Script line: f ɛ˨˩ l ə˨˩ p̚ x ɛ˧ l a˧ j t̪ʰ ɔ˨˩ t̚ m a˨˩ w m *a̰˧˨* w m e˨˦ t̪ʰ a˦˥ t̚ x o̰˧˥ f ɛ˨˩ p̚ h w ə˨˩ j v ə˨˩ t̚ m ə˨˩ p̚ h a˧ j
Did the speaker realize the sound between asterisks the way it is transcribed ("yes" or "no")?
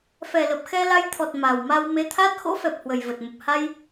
no